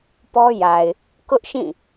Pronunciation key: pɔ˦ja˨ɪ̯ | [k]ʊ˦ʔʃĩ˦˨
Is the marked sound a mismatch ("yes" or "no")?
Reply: no